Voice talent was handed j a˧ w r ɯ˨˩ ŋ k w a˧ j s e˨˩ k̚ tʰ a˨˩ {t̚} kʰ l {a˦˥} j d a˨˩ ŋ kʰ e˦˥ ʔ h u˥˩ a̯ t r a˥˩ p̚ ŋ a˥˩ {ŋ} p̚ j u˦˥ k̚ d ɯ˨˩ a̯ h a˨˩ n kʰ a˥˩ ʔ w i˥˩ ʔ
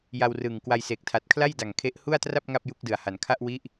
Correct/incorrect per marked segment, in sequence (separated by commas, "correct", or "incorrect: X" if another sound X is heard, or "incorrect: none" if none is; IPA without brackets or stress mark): correct, incorrect: a˥˩, incorrect: none